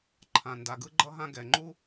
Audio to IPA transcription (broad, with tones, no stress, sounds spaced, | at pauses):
ǃʰ ã˩ n d a˩ ɡ ɯ˥ ɡ͡ǃ ʌ˥ ɦ ã˥ ɡ ɛ˩ ŋ͡ǃ u˥